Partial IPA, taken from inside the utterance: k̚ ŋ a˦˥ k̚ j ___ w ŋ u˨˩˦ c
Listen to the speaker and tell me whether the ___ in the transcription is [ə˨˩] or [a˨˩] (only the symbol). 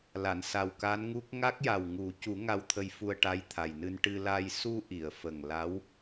a˨˩